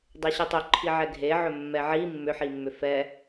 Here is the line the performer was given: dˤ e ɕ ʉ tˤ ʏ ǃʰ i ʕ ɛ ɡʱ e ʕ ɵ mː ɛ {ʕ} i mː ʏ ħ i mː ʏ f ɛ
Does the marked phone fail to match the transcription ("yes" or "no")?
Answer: no